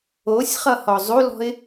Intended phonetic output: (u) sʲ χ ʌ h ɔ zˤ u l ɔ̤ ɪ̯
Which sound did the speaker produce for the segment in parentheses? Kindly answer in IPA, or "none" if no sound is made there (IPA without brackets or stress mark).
o